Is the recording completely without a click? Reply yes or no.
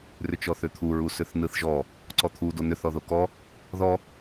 no